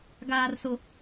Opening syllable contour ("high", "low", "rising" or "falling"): low